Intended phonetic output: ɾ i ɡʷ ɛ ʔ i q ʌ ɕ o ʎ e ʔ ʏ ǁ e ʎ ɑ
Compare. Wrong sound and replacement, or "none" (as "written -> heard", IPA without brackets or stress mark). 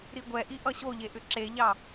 q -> ʔ